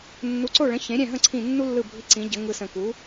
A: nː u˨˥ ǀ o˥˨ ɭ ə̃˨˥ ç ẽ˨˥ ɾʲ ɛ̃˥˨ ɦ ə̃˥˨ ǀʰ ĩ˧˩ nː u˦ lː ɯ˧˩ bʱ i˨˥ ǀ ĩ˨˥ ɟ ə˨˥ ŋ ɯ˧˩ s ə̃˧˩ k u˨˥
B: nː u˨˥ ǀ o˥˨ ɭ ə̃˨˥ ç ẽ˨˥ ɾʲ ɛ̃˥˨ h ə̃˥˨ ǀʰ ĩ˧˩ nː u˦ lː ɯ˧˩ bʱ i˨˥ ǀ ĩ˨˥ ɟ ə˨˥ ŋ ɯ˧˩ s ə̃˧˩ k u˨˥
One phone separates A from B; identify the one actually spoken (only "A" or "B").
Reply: A